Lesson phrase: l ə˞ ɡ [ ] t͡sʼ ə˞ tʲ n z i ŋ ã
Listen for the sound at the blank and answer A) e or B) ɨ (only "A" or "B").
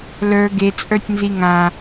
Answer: A